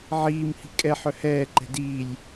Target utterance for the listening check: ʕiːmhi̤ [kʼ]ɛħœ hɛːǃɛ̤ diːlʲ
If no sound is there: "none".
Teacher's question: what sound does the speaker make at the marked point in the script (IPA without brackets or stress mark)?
kʼ